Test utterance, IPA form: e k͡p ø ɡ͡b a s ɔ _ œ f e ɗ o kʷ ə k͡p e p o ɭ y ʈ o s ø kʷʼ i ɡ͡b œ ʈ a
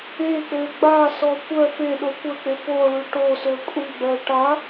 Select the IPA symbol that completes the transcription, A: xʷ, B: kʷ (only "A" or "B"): B